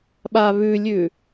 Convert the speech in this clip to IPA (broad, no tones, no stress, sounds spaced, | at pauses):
ɓ a β ʉ lʲ ʉ